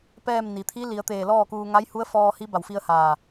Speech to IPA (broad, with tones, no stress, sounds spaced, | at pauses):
p ɛː˥˨ m n i˩ t̪ʰ i˧˥ l i˩˧ ə̯ t̪ eː˧˩ l ɔː˥˨ k uː˧ ŋ a˧˥ j h u˧˥ ə̯ f ɔː˧ h i˧˥ b a˧˩ w f i˧ ə̯ h aː˧˩